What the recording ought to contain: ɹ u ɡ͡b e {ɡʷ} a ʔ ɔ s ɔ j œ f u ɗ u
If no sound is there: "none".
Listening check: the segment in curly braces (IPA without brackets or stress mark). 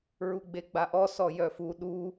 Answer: ɡ͡b